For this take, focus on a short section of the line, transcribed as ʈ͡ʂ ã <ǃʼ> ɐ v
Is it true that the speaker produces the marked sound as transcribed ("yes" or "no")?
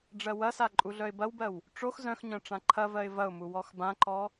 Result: no